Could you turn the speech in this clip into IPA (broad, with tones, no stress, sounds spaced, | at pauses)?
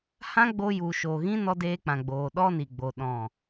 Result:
h ã˦ ɡ͡b o˧ j u˨ ʃ oː˨ ɣ ĩ˦ n ɔ˧ d eː˧ k͡p ã˨ ɡ͡b oː˨ ɗ ɔ˦ n i˨ ɡ͡b o˨ ɗ ɔ̃˨